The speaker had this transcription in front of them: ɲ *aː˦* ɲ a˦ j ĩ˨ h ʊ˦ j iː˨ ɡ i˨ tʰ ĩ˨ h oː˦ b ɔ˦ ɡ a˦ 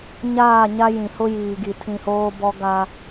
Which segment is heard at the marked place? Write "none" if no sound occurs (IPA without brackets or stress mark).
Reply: aː˦˨